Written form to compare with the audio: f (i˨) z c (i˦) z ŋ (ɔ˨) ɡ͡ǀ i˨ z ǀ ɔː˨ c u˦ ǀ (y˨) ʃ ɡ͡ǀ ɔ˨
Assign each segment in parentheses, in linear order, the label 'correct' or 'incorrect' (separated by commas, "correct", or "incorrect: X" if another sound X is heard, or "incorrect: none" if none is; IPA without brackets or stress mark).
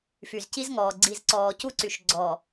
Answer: incorrect: y˨, correct, incorrect: ɔː˨, correct